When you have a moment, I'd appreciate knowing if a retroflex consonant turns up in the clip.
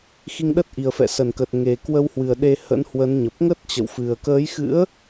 no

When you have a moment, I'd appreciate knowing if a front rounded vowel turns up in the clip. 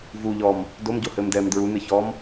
no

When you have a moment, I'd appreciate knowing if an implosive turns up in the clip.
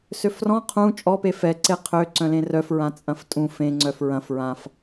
no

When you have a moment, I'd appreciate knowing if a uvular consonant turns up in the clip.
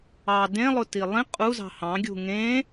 yes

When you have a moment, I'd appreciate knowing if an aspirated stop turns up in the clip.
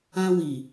no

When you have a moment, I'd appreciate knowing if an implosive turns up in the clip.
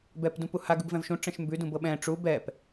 yes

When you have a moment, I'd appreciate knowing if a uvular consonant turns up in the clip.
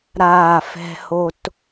no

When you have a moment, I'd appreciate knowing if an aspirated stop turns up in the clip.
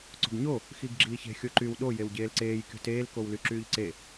no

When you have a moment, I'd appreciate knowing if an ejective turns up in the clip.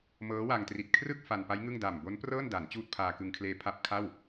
no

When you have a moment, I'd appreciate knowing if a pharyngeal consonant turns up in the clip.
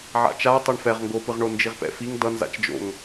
yes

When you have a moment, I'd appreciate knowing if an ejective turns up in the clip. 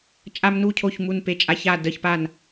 yes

